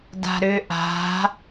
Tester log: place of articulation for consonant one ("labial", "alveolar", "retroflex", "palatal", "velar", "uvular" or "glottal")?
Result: alveolar